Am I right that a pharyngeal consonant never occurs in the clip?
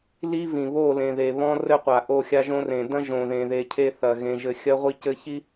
yes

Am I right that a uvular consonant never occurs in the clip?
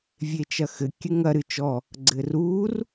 yes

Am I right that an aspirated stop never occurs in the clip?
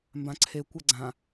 no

